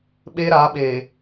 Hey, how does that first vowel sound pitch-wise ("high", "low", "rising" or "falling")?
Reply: high